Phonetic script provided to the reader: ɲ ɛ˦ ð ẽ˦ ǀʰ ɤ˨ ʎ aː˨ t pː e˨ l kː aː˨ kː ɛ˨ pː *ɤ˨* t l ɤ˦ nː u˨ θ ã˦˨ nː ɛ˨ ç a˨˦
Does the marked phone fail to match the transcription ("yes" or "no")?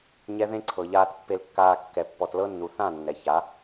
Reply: yes